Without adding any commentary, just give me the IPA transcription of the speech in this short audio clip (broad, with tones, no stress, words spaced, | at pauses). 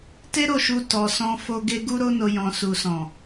te˦ɾo˦˨ʃu˧ tɔ˧sɔ̃˦ fo˦ɡe˦ ɡu˦ɾo˦no˧ jɔ̃˧ su˨sɔ̃˨